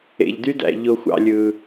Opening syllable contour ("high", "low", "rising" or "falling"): low